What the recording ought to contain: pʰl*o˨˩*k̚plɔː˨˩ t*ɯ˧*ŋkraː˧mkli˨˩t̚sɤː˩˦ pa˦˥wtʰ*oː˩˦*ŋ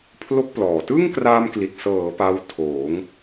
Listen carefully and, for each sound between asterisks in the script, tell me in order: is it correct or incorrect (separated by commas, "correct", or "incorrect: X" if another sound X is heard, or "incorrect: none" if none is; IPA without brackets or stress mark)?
incorrect: o˦˥, incorrect: ɯ˥˩, correct